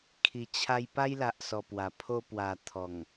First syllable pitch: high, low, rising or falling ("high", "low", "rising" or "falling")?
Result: low